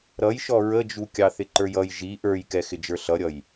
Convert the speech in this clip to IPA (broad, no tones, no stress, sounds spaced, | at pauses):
ɾ ʌ j ʃ ɔ ɹ ə d͡ʒ u kʲ ɑ θ ɪ ǃ ə˞ j ʌ j ʒ i ʔ ə˞ j k ɛ x ɪ d͡ʒ ə˞ ɬ ʌ ɾʲ ʌ j